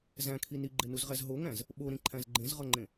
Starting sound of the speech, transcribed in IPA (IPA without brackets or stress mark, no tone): z